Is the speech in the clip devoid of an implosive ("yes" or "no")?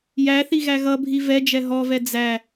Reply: yes